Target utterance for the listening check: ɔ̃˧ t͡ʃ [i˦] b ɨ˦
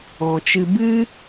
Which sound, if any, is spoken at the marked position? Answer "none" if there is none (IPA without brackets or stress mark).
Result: ɨ˦